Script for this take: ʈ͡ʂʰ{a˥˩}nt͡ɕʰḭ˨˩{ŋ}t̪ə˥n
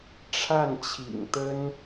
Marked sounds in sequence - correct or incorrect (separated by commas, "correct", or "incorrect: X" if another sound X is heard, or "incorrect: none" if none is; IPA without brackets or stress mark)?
correct, correct